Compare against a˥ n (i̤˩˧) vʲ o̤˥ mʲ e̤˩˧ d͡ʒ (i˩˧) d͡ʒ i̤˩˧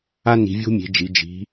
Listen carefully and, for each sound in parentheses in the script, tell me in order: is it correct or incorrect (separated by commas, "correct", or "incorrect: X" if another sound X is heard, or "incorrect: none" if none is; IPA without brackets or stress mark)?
correct, correct